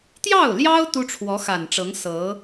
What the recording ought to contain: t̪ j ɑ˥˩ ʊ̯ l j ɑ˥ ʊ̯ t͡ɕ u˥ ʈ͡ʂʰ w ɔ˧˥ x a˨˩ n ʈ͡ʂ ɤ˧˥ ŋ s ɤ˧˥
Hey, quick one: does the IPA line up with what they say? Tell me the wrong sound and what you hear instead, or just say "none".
t͡ɕ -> t̪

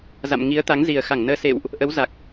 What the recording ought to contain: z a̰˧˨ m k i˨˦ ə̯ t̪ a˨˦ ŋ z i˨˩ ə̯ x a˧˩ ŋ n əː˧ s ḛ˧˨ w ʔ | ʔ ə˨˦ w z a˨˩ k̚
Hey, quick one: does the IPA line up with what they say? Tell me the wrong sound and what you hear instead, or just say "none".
k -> ŋ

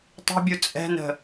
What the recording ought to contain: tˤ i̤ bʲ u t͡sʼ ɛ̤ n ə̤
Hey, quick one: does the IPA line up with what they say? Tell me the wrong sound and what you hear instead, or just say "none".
none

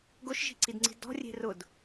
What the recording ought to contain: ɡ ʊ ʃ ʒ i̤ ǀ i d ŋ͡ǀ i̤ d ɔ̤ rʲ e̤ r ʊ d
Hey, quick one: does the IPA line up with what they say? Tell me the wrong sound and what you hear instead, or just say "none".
none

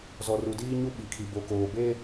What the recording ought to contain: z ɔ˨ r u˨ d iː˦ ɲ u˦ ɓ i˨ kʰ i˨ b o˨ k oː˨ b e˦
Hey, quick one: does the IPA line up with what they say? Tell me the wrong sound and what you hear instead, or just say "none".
none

